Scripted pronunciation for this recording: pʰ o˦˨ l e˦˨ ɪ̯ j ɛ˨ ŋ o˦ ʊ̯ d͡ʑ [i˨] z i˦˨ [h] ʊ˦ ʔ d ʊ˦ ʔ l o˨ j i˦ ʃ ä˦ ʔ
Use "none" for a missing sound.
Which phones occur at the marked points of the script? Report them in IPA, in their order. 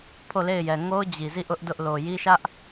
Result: i˨, ʔ

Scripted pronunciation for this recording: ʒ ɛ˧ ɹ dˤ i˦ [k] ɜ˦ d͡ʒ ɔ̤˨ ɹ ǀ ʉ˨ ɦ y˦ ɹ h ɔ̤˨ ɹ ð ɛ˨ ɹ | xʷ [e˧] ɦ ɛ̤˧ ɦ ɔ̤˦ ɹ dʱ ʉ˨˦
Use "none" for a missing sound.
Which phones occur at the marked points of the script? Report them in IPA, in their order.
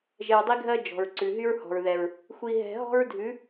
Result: ɡʱ, i˧

